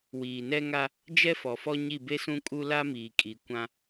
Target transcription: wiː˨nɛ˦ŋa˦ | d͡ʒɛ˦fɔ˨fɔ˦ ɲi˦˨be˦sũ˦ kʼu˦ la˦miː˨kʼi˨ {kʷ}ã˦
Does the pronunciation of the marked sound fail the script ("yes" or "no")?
no